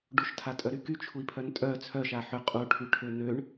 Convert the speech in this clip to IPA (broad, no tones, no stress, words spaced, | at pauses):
ɖuʃtʰatʼœɾy kyt͡ʃʰui̯pʰœn tʼœ t͡sʰœʃa ħø qʼuʈʰyʈʰø n̪øɳ